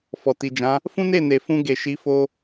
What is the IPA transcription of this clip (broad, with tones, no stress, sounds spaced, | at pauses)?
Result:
f ɔ˨ t i˨ d͡ʒ ã˨˦ | f ũ˦ n e˦˨ n e˨ f ũ˧ ɡ e˨ ʃ i˨˦ f o˧